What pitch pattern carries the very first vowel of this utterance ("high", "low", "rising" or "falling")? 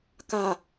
low